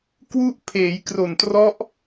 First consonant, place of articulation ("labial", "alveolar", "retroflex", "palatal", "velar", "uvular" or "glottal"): velar